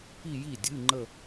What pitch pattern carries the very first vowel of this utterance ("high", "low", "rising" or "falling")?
falling